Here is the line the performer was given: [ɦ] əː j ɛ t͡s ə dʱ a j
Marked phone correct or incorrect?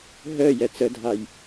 correct